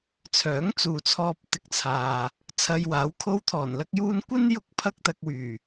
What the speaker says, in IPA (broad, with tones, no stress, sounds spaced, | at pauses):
t͡sʰ œː˨˥ ŋ t͡s uː˨ t͡sʰ ɔː˧ p̚ t̪ ɪ˧ k̚ t͡sʰ aː˨ | t͡sʰ ɐ˧ j w aː˨˥ w kʰ o˧ w t̪ʰ ɔː˨˩ n l ɐ˥ k̚ j uː˥ n kʷ ɐ˥ n j ʊ˥ k̚ pʰ ɐ˥ k̚ t̪ ɐ˧ k̚ w yː˨˩